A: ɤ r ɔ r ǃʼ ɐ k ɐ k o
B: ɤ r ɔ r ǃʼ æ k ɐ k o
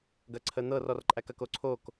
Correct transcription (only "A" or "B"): B